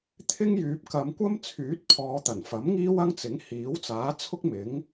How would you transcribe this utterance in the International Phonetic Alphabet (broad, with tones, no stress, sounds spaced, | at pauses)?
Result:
t̪ʰ ɪ˥ ŋ j yː˨ p̚ k ɐ˨˧ m kʷ ɐ˥ m t͡sʰ yː˨˥ t̚ pʰ ɔː˨˧ t̪ ɐ˨˩ n f ɐ˨˥ m ŋ iː˥ w ɐ˥ ŋ t͡s ɪ˨˥ ŋ h iː˨˥ w t͡s aː˨˥ t͡sʰ ʊ˥ k̚ m ɪ˨˥ ŋ